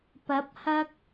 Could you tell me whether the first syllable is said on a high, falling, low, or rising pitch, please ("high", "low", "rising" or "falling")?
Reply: rising